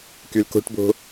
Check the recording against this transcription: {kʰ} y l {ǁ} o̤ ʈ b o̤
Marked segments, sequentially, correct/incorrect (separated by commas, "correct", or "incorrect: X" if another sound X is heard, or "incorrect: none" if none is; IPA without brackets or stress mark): incorrect: k, incorrect: k